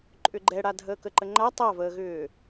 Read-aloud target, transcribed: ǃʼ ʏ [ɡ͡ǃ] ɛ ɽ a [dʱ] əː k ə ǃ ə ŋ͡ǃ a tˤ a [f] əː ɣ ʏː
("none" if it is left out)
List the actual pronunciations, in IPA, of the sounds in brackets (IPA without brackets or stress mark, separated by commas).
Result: ɡ͡ǃ, dʱ, v